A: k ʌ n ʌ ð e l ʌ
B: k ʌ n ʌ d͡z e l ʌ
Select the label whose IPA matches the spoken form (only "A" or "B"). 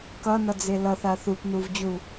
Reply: B